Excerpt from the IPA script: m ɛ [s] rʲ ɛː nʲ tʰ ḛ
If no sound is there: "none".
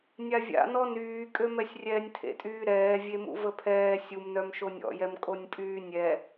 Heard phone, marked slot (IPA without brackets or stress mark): sʲ